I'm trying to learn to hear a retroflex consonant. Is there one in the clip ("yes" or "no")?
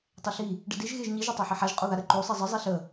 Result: yes